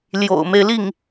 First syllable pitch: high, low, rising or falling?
low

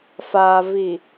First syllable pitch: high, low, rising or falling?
low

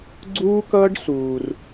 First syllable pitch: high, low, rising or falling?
high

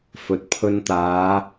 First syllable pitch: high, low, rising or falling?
rising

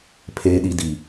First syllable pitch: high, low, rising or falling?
low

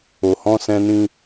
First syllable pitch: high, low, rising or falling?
low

